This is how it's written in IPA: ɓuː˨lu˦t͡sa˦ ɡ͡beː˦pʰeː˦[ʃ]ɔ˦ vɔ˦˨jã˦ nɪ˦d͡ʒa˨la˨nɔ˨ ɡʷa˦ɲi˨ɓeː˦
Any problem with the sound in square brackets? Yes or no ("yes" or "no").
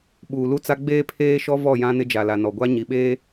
no